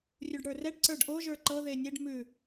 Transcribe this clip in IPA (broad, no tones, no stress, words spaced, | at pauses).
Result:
rʲuɖɽə˞rɛɖ ǀə˞ɖʔo ʒə˞ǃɤ ðenʲeɖ mʉ